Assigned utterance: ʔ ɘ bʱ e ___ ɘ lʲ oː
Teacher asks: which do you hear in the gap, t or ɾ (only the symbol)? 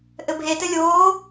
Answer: t